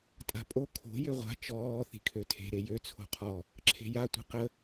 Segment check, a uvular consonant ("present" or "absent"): present